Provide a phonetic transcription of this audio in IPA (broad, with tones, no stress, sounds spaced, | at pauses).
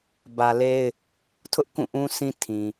b ä˨ l e˦ ɪ̯ | tʰ ʊ˦ ʔ k ũ˦˨ ʔ ũ˦ sʰ ĩ˦ tʰ ĩ˨